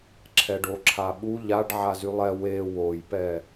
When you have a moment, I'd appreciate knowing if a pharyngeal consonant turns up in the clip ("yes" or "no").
yes